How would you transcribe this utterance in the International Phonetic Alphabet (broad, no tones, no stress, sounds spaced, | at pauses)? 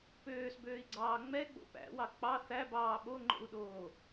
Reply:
p øː s b øː i̯ ɡ͡ǀ ɑː ŋ͡m ɛ ɡ͡b o̰ p æ̰ w ɑ k͡p ɑ θ æ b ɑː ɓ o ŋ͡ǃ o̰ u̯ ɗ oː